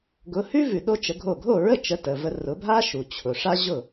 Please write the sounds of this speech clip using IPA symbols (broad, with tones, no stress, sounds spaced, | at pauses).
ɡ ʊ˩˥ h ʉ˥ v ʉ˩ ɗ o˥ t͡ʃ ə˩˥ ɡʱ o˥˩ ɡʱ o˥˩ ɹ ə˥˩ t͡ʃ ə˧ t ə˩ v ə˧ r ʊ˩˥ bʱ a˥ ʃ u˩ t͡ɕʰ ʊ˩ ʂ a˥ ʑ ʊ˥˩